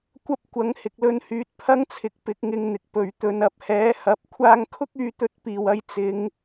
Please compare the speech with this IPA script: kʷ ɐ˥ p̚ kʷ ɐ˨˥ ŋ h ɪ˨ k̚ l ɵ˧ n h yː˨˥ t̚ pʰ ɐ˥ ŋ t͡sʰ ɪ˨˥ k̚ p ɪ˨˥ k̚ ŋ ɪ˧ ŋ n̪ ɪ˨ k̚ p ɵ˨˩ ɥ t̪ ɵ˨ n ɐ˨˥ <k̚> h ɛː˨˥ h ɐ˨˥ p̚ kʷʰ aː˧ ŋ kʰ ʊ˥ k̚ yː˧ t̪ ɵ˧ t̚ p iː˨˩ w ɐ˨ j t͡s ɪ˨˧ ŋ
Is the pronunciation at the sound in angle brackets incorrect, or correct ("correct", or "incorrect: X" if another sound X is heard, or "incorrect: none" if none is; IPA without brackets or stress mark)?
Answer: incorrect: p̚